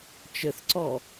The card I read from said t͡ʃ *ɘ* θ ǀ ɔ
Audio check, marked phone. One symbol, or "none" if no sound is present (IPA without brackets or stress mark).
ɘ